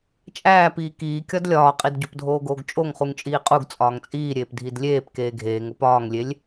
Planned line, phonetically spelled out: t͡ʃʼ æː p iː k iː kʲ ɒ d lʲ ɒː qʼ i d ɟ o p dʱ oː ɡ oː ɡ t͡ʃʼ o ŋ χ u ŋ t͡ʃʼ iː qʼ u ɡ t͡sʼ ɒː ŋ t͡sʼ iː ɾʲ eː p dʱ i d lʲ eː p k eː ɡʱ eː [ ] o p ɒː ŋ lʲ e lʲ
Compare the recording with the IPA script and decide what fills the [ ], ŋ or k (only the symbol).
ŋ